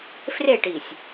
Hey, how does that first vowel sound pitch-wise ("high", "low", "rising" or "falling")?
falling